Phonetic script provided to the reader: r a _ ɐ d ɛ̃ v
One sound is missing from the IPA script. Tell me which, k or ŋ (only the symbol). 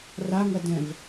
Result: ŋ